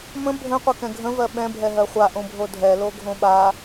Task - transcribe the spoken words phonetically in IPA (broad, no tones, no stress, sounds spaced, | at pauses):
m ə̃ bʱ ə̃ qʷ ə k ɛ̃ ɡʱ ə̃ v ɜ ɓ ɛ̃ bʱ ɛ ɦ ɜ χʷ a ʔ õ bʱ o dʱ ɛ l o ɡʱ õ ɓ a